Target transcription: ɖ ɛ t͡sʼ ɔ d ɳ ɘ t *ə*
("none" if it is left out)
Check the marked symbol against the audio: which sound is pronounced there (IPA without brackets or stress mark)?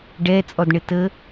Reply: ə